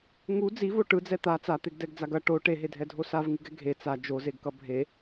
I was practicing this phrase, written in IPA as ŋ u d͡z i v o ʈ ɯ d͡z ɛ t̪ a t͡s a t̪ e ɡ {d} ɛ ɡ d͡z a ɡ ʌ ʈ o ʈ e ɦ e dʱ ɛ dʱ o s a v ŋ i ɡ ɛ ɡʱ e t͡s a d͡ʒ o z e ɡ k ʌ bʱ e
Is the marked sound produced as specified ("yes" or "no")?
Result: yes